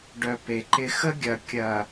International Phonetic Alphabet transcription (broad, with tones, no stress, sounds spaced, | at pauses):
ɖ œ˨ p e˨ ǃ ɪ˦ x ə˦ ɡʲ ɐ˨ kʲ ɐ˨